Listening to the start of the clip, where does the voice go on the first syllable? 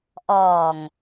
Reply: low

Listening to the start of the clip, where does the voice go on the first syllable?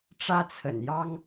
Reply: high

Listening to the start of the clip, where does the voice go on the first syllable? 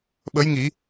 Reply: rising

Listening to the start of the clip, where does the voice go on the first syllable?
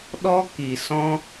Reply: high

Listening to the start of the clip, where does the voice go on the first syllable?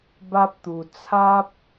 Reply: high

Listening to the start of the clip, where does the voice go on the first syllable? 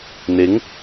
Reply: rising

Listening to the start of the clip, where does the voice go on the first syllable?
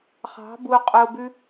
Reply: rising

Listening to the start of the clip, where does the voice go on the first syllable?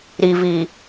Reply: low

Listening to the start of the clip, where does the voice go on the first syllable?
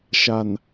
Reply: low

